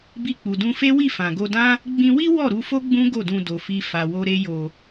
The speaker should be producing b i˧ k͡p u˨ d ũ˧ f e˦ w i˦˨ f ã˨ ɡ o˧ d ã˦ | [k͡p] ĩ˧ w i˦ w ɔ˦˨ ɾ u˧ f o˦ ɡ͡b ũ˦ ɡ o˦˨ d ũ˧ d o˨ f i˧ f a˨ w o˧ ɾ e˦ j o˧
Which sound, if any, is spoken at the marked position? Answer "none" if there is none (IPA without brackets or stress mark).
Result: ɡ͡b